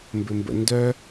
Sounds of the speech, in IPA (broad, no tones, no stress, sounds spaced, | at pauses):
m b ɘ m b ə̰ n d œ